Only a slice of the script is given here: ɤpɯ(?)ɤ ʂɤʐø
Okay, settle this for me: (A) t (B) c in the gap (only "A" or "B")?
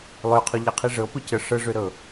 B